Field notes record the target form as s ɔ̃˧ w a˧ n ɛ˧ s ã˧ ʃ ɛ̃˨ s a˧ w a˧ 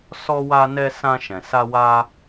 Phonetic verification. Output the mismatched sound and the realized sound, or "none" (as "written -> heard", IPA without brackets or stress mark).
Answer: ɔ̃˧ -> ɔ˧